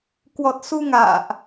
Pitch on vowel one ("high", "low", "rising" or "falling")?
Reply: low